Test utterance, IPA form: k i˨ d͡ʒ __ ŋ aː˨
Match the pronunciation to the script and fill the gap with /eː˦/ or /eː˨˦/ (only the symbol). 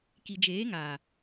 eː˨˦